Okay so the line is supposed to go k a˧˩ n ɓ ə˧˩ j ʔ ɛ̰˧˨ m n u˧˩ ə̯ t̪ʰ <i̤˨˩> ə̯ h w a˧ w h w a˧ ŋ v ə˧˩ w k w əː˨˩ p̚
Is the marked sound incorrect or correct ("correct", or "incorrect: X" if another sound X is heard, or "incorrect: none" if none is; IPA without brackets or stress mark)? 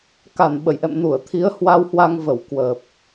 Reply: incorrect: i˨˦